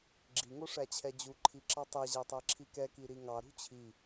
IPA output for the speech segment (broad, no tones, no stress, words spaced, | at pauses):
ɡ͡ǁiŋo ʂæt͡ɕʰɛd͡ʑuǃʰi ǁɑtˤɛʑæ tˤæǁʰikɛki ɾiŋɑɾṳ t͡ɕʰi